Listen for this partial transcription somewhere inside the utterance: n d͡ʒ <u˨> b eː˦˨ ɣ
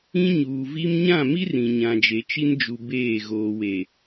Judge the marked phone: correct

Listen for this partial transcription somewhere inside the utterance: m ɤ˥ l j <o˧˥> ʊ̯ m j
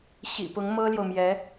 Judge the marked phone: incorrect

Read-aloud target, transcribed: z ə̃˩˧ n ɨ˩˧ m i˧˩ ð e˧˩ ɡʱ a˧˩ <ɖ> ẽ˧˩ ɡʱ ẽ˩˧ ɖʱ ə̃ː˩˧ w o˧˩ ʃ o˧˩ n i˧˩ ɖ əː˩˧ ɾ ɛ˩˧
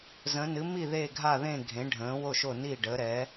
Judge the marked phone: incorrect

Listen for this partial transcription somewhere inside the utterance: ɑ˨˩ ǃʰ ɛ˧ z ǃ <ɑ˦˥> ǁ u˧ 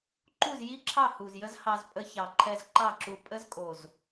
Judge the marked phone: incorrect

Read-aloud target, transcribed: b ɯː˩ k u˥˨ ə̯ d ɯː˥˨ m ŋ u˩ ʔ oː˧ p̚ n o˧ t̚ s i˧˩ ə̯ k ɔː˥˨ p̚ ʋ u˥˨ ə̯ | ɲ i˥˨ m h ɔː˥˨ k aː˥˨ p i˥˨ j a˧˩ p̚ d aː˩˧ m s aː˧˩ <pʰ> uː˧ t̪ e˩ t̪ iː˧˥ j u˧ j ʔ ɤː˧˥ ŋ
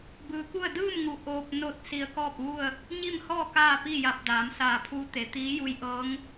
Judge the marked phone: correct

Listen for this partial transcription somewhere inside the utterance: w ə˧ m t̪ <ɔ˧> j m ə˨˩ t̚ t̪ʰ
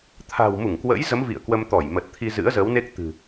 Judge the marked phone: incorrect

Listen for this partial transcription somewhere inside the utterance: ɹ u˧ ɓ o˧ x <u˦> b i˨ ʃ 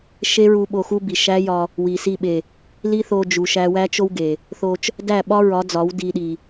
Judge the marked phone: correct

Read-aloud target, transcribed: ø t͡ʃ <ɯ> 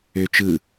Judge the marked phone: correct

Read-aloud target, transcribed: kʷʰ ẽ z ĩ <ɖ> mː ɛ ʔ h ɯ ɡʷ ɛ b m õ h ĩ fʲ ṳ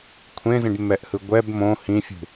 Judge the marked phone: correct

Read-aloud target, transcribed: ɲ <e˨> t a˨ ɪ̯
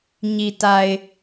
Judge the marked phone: incorrect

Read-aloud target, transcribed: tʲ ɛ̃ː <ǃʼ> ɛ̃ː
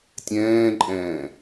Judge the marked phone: correct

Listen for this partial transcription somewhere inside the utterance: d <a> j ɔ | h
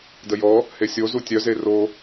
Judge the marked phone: incorrect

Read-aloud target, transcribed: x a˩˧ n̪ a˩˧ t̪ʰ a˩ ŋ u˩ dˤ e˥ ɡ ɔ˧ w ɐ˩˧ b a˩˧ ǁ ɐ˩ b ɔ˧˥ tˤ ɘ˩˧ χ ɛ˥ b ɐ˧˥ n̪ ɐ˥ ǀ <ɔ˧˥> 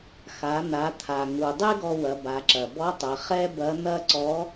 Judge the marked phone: correct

